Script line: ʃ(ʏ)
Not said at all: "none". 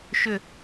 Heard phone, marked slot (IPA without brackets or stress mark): ʏ